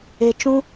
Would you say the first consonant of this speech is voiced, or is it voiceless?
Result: voiceless